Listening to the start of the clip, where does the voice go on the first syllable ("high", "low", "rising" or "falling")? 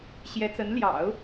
rising